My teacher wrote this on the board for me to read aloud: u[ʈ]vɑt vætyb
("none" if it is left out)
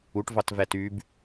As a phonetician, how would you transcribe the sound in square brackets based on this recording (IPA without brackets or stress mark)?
ʈ